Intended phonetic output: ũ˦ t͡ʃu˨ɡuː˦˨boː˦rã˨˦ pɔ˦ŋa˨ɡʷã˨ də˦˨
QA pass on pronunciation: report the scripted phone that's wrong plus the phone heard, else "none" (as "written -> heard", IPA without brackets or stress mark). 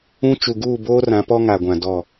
ə˦˨ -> ɔ˦˨